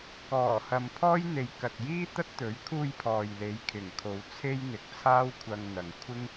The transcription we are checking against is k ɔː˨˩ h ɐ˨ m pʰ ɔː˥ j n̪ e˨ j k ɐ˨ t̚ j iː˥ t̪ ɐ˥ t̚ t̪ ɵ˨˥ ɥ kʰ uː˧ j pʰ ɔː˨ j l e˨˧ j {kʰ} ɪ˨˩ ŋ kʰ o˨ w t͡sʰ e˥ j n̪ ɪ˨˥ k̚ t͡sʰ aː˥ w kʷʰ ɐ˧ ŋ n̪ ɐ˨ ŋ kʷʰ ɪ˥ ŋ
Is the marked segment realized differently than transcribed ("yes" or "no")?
no